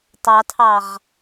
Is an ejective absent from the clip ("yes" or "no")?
yes